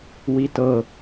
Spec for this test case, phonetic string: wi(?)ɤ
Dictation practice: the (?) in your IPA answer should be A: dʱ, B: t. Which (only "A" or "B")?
B